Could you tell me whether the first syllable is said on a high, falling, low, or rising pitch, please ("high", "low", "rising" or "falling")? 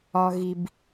low